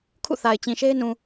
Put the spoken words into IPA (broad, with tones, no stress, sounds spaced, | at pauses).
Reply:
kʰ ṵ˦˨ θ a˨ ɪ̯ t͡ɕ ĩ˨ ʃ e˦ ɪ̯ n ũ˨